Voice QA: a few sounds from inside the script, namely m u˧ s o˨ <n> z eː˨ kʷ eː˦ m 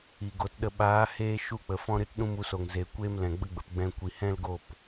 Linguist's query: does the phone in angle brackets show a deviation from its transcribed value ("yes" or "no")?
yes